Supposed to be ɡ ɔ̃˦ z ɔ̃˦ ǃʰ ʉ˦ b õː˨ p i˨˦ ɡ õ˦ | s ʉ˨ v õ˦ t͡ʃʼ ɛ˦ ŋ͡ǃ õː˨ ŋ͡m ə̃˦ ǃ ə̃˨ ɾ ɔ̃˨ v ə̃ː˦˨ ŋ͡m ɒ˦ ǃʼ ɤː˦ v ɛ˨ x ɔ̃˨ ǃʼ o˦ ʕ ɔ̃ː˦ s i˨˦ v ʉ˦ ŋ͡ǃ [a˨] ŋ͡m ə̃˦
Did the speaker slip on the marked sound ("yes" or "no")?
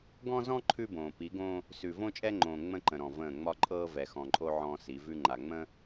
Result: no